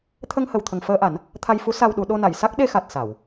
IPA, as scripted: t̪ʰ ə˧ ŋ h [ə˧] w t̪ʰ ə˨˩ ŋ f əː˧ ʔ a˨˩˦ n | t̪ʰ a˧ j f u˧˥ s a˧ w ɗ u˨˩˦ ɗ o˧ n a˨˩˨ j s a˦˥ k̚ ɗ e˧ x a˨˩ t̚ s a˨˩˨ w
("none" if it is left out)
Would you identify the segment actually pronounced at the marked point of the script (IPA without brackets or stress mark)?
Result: ə˨˩